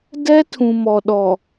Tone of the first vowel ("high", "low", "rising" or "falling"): high